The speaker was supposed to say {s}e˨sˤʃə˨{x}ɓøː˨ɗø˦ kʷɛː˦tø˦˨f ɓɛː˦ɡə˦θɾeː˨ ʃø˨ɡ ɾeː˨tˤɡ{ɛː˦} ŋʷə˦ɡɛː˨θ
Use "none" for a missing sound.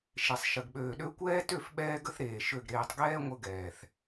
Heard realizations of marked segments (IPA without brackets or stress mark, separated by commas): ʃ, ɡ, ɛː˦